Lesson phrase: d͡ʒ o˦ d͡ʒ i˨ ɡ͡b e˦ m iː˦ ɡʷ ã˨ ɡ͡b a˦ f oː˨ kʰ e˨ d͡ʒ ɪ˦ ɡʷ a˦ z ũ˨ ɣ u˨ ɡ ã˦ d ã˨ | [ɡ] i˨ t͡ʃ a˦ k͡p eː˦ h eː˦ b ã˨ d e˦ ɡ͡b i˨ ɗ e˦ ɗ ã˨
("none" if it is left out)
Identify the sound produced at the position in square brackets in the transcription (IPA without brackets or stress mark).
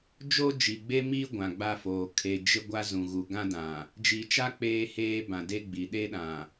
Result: d͡ʒ